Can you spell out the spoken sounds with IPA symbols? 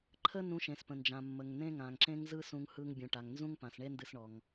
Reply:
ǃʰ ə˥ n ũ˧ ʃ ẽ˩ s p ə̃˩ n d͡ʒ ã˩ mː ə˩ ŋ n ẽ˥ ŋ ã˩ ŋ ǁ ẽ˥ ŋ z ɯ˥ s ũ˧ ŋ h ɯ˧ ŋ bʲ ũ˩ ʈ a˩ ŋ n z ũ˥ ŋ p ã˩ s ɳ e˥ n d ɨ˧ s ɳ ɔ˩ ŋ

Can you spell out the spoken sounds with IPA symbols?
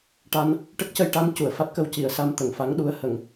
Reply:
ʈ a˧ n | ʈ ə˦˥ k̚ c ə˧ j ʈ a˧˥ n c u˨˩˨ ə̯ f a˦˥ t̚ k ə˧ w c i˨˩˨ ə̯ s a˧ m t̪ ə˨˩˨ ŋ f a˧˥ ŋ ɗ u˧˥ ə̯ h ə˨˩˨ ŋ

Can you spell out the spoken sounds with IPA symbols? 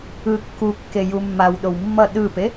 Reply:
ɯ kː u kː e j u mː a w ɗ o w mː ʌ ɗ ɯ p e

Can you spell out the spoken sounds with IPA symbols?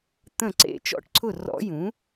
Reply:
t̪ ə̃˥˩ ǀ ḛ˧˥ t͡ʃ ɔ̰˥˩ ʈ ǀʰ ʊ˥˩ r ɔ̰˧˥ j ũ˩˥

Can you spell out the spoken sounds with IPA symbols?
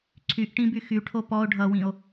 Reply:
ǀʰ y ʔ ʈ ĩ b y x y ʈʰ o p ɔ o̯ ɖʱ ʌ w ĩ o̯

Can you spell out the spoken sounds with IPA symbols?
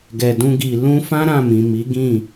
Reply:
ɡ ɛ˨ d ũ˧ ɡ i˨ l ũ˧ f ã˦ ɾ ã˦˨ m ĩ˨ m i˨˦ ɡ ĩ˦˨

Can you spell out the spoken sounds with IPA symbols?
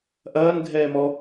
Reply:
ʔ ɐː n ɡʱ ɛː m ɔ

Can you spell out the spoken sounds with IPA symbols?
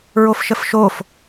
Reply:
ɹ o f ʃ ə f ʃ o f

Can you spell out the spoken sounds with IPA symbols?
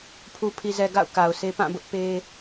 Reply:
pʰ u˨ pʰ i˨ z ɛ˨ ɡ a̰˦˨ ʊ̯ k a˨ ʊ̯ sʰ e˦ p ã˦˨ b ʊ˦ ʔ p e˦

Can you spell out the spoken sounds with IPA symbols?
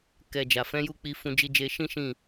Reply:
k ɛ˧ d͡ʒ a˨ f ɛ̃˨˦ j u˦˨ k͡p i˧ f ũ˧ d͡ʒ i˧ d͡ʒ e˧ ʃ ĩ˦ ʃ ĩ˦˨

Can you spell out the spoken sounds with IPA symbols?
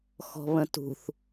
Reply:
x ɔ̤ β ə̃ t ṳ θ

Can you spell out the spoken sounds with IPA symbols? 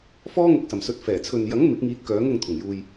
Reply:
f ɔː˥ ŋ ʊ˧ k̚ s ɐ˨ m s ɵ˧ t̚ f ɛː˨˩ t͡sʰ ɵ˨ n j ɐ˨˥ ŋ m ɪ˨˥ k̚ ŋ iː˧ t̚ k œː˨˥ ŋ ʊ˧ ŋ t̪ʰ ʊ˨˩ ŋ j uː˧ j

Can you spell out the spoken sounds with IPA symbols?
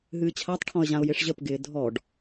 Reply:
ɦ ɨː t͡ɕʰ a tˤ ʈʰ ɔ̃ ə̯ ʑ ã ʊ̯ j ɪ ʂ ʑ ə p ɡ ɪː dʱ ɔ ɖ

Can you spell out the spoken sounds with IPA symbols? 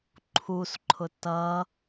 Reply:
ǃʰ u s ǃʰ ʊ t ʌ

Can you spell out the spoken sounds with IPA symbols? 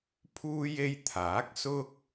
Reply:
pʰ uː˥ j e˥ j t̪ʰ aː˨˥ k̚ s ʊ˥ k̚

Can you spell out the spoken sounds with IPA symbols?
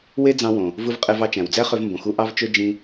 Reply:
w e˥ d͡z ɑ̃˧ w õ˩ | v ɯ˧ v qʼ e˧ v ɑ˧ t͡ʃ æ̃˩ w d͡z æ˥ χ ø˧ v m b õ˩ x u˧ ʔ ɑ˥ v t͡ʃ ø˥ d͡ʒ ĩ˧

